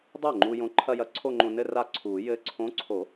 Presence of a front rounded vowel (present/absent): absent